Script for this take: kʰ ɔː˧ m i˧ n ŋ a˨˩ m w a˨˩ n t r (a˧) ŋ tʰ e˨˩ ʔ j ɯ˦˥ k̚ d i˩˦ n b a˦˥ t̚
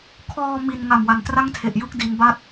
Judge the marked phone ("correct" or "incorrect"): incorrect